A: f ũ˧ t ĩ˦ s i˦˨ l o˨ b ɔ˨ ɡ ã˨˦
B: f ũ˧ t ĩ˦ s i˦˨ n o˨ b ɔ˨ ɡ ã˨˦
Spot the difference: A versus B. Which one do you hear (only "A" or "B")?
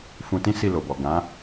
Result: A